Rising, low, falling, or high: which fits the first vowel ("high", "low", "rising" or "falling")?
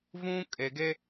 high